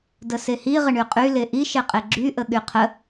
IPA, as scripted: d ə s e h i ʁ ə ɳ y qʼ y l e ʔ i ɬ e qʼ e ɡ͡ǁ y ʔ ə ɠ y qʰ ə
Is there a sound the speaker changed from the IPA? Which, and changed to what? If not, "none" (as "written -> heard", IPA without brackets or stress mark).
ɬ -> ʃ